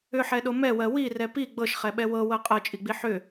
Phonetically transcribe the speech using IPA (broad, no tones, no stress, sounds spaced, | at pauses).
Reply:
ʏ ħ ɛ ɗ o m ɛ w ɜ w i r ɛ p i ɡ͡b ɤ ʃ χ ɛ ɓ ɛ w ɤ w ɤ qʼ ɤ t͡ʃʼ i ɡ͡b i ħ ʏ